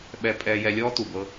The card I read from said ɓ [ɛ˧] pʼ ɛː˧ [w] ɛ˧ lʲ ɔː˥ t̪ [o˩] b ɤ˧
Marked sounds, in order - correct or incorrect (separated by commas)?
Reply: correct, incorrect, incorrect